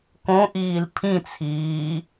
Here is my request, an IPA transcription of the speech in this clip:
k õ ʔ iː l pʰ ĩ t͡sʰ iː

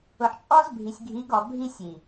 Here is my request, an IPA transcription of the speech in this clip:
ʊ˨ ħ t͡ʃʼ ɔ˦ z bʱ i˨ sʲ ɡʱ i˨˦ ɡ ɔ˨ bʱ i˦ sʲ i˨

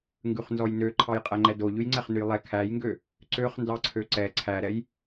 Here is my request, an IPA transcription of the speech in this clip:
ŋ ɡ ʉ χ n z ɔ j n ø ǃʰ ɑ j qʼ æ ŋ͡ǃ ɛ d o ʎ ʉ j ŋ͡ǀ ɛ χ n ʉ j lˠ ɛ kʰ æ j ŋ ɡ ø | ǀ ø χ n d ɑ ǀʰ ø ǀ ɛ ǀʰ æ ɾ ɛ j

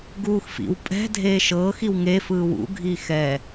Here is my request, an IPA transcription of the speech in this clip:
ɡ uː x f ḭ w pʼ ɛ̤ dʱ eː ʃ ɤː x i w ŋ e f ɯː w ṵ ɡʱ iː x ɛ

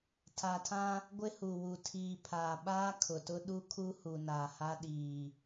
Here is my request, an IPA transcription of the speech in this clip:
tʰ a˨ tʰ ã˦ | ɡʷ ɪ˦ h u˨ w u˨ tʰ iː˨ pʰ aː˨ ɓ aː˦ kʰ ʊ˨ t ʊ˦ ɗ u˦ kʰ u˦ h u˨ n aː˨ h a˦ ɗ iː˨

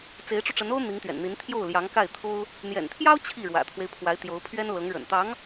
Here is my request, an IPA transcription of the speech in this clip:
t͡s e˧˥ ɪ̯ ʈ͡ʂ u˧ ʈ͡ʂ ə˧˥ n o˥ ʊ̯ n̪ i˧˥ ŋ t̪ ɥ ɛ̰˨˩ n n̪ i˧˥ n t̪ʰ j o˥˩ ʊ̯ l j ɑ˧˥ ŋ k a˥˩ ɪ̯ t̪ʰ o˥ ʊ̯ | n̪ j ɛ̰˨˩ n t̪ʰ j ɑ˥ ʊ̯ t͡ɕʰ i˥˩ ɻ w ä̰˨˩ t̪ʰ w e˦ ɪ̯ pʰ w a˧˥ ɪ̯ t̪ j o˧˥ ʊ̯ pʰ ɥ ɛ˥ n l ɤ˧˥ ŋ ɻ ə̰˨˩ n t̪ ɑ˧˥ ŋ

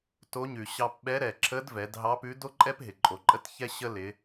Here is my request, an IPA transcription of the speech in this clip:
t o˧˥ ɲ ʉ˩ ɕ ɑ˧ p ɓ ɛ˧˥ ɾ ɛ˩ ǁʰ ə˧˥ d v ɛ˩˧ d ɦ ɑ˧˥ p ʉ˧˥ d o˥ ǃʼ ɛ˥ p ɦ ɪ˩ ǃʼ o˩ ǃʼ ə˧˥ t ç ɛ˥ ɕ ə˥ l ɪ˩˧

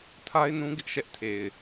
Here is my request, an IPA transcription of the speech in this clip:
tʰ a˦ ɪ̯ n ũ˦ ɡ ɪ˦ ʔ ʃ ɛ˦ ʔ tʰ e˨ ɪ̯

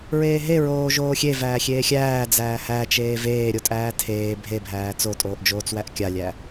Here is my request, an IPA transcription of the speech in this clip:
ɹ eː ɦ e ɹ oː ʒ oː xʲ e v æː xʲ eː xʲ æː d͡z æː h æ t͡ʃ eː v eː ɾʲ o tʼ æː tʰ eː bʱ e bʱ æː t͡s o tʼ oː ʔ d͡ʒ oː t͡s w æ ʔ kʲ a lʲ æ

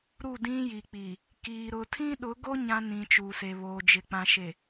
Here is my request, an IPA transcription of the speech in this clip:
ɾ u˦˨ d ĩ˦ j i˨ k͡p i˨ | k iː˨ ɾ ʊ˨ tʰ ĩ˦ ɗ ʊ˨˦ ɡ o˦ ɲ ã˦ n ĩ˨ t͡ʃ uː˨ s e˨ β oː˨ d͡ʒ ɪ˨ k͡p ã˨ ʃ e˨

